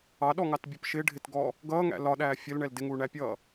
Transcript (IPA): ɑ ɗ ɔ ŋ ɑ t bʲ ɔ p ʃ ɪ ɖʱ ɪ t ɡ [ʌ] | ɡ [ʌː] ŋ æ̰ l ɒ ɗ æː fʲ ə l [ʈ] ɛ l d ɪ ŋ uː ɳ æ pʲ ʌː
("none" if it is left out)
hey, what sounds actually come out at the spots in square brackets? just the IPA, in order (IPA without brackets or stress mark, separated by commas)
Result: ɔ, ʌː, ɳ